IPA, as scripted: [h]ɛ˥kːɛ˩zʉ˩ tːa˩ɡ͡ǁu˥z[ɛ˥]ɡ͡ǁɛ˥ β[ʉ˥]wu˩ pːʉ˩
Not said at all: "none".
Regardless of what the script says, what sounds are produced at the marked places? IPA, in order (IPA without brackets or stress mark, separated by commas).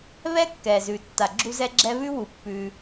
β, ɛ˥, ʉ˥